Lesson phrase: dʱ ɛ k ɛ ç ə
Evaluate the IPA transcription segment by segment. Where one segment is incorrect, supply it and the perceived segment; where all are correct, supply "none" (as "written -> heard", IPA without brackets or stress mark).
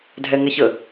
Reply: k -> ŋ